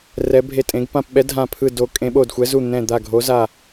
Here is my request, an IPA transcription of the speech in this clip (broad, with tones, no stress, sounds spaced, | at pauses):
r ɛ˨˦ bʱ e˧˩ tʼ ẽ˨˦ ɡ p ã˧˩ p ɓ ɛ˨˦ dʱ ã˧˩ pʰ ɯ˧˩ d o˨˦ kʼ ẽ˨˦ ɓ o˧˩ d xʷ ɛ˨˦ z u˧˩ n̪ ɛ̃˧˩ d̪ a˧˩ ɡʱ o˨˦ z a˧˩